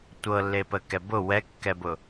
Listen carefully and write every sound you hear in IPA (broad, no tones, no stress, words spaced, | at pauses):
tʷɤlːepəkɛ bʊ wɛkːɛbʊ